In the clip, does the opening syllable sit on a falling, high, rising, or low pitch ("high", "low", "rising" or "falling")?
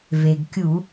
low